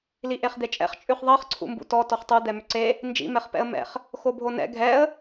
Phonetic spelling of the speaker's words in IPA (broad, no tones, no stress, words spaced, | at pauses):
liʔeχd̪et͡ʃʼɛ̰χ t͡ʃʼʉχðˤɜχ ǀʰṵmbṵtɔ tɔχtˤu d̪ɛmʏǀe | nd͡ʒḭ mɛχpɛ̰ə̯mɛ̰χ | xobʱonɛ̰ ɡʱɛə̯